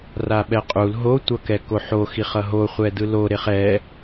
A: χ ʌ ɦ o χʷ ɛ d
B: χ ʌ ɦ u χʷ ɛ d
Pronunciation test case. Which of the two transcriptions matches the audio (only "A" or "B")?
A